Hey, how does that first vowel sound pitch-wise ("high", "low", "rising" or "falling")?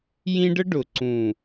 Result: high